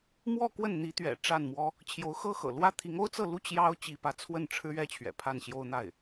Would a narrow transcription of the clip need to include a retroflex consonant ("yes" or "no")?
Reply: yes